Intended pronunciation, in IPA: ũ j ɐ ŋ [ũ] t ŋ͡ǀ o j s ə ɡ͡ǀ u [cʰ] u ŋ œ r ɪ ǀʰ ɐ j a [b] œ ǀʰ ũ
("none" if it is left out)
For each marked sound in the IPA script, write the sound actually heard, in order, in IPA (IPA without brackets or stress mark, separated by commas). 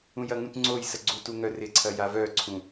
ũ, t, v